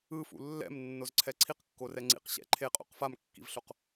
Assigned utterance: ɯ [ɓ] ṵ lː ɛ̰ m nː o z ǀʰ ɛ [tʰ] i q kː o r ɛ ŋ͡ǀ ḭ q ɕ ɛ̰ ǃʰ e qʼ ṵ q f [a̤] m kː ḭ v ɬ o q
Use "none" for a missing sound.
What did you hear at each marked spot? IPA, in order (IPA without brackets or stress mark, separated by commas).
f, ǀʰ, a